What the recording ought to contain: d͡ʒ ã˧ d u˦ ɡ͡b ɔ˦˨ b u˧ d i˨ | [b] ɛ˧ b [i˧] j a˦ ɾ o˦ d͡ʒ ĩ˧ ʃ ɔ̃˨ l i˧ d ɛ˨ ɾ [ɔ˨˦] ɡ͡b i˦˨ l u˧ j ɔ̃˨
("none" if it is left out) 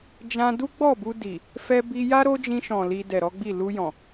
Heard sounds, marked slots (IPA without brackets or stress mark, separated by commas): f, i˧, ɔ˨˦